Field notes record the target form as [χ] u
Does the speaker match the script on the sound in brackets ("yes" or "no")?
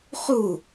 yes